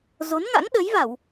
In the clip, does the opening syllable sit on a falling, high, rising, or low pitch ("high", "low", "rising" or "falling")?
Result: rising